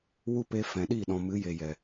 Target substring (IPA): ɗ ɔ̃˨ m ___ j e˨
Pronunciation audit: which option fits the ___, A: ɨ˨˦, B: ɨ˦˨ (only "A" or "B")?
A